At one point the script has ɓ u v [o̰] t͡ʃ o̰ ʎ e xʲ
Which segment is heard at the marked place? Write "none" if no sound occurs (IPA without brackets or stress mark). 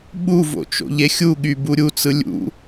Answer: o̰